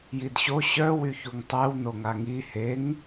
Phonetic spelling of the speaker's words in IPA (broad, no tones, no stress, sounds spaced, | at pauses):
j i d ɕ o ɕ œ w y ç u ŋ tˤ e w n o ŋ a ŋ i h e ŋ